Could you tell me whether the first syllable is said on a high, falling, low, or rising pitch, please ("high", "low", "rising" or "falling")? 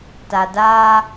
low